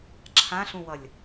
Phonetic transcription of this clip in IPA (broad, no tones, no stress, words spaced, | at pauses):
ǁʰãɬũwʌlʲ